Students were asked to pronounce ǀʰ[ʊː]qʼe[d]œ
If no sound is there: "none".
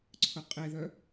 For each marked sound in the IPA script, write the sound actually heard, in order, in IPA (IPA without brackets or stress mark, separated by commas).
ʊ, ð